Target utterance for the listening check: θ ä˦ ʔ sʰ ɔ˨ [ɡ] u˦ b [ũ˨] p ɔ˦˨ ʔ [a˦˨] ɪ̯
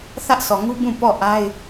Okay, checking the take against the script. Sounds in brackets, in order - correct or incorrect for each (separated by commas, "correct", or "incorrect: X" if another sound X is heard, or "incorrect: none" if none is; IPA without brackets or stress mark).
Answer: incorrect: ŋ, incorrect: ũ˦˨, incorrect: a˦